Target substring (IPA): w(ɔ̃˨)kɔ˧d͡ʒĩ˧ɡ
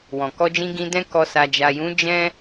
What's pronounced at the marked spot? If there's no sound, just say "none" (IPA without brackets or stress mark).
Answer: ɔ̃˨